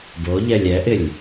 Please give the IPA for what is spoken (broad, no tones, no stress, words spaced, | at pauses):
boʎɛlʲ ɛʔɪlʲ